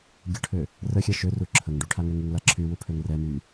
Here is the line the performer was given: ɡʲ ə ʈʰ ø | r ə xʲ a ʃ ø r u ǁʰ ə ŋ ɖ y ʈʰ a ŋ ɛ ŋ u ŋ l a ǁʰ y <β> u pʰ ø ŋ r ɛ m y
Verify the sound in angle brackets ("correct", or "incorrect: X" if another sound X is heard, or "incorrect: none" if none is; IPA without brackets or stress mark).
incorrect: w